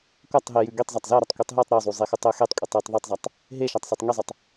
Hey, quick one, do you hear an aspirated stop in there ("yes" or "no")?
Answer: no